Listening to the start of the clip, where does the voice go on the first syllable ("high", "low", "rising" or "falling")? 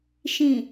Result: low